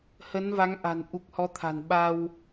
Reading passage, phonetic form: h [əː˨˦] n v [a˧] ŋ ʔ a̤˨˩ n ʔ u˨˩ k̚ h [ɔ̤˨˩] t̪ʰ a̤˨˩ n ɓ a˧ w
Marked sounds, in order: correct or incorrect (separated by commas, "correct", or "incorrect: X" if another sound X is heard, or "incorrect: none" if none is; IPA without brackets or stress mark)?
incorrect: ə˨˦, incorrect: a˨˦, incorrect: ɔ˨˦